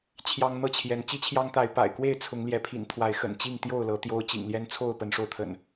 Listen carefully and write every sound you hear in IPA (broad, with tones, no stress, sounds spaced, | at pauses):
t͡ɕʰ j ɑ˦ ŋ n̪ ɤ˥˨ t͡ɕʰ j ɛ˨˦ n t͡ɕ i˦ t͡ɕʰ j ɑ˦ ŋ t̪ a˨˦ ɪ̯ p a̰˨˩ ɪ̯ k w e˥˨ ɪ̯ t͡sʰ ʊ˨˦ ŋ l j ɛ˨˦ pʰ ḭ˨˩ n t̪ʰ w a˨˦ ɪ̯ x ə̰˨˩ n t͡ɕ i˥˨ ŋ t̪ j o˥˨ ʊ̯ l ɤ˨˦ t̪ j o˦ ʊ̯ t͡ɕ ḭ˨˩ ŋ l j ɛ˦ n t͡sʰ o˥˨ ʊ̯ p ə˨˦ n ʂ o˧ ʊ̯ t̪ʰ ə̰˨˩ n